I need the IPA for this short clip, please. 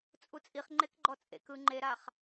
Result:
t͡sʼ u t͡sʼ i χ ŋ͡ǃ e k ɡ͡ǃ ɔ t͡sʼ ḛ k ɯ ŋ͡ǃ e ɾ a χ

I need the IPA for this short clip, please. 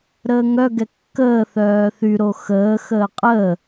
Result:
ɾ əː ŋ œ ɡ ɛ kː əː θ œː θ y ɾ o x əː x əː qʼ əː

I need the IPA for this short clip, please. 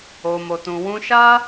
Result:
o˨ m o˨ t ũ˨ w ũ˧ ʃ a˦

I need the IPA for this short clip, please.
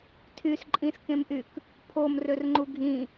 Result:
tʰ y s ǃʼ ĩ s k ẽ m ʔ y k | pʰ o m r ø r ŋ͡ǃ u ɡʱ ĩ

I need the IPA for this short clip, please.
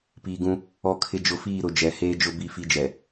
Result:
p iː˨ ɡ ũ˦ | ɔ˦˨ kʰ ɪ˦ d͡ʒ ʊ˦ f iː˦˨ ɾ ʊ˨ d͡ʒ ɛ˨ h eː˦ d͡ʒ ʊ˦ b i˦ f i˦ d͡ʒ ɛ˨

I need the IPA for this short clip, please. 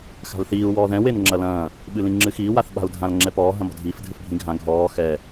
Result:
x a̤ l θ iː u̯ w ɔː ð ɛ̃ w e n ŋ͡ǁ ɐ l ɐ̃ː | ɓ ɨ l ĩ ŋ͡ǁ ɨ x iː w a θ ɓ a̤ u̯ dʱ ã l ŋ͡ǁ ɛ p ɔː ɦ ɐ̃ m ɔ̤ dʱ iː f dʱ ɨ f bʱ ĩ ɡʱ ã ɡʱ ɔː x ɛ

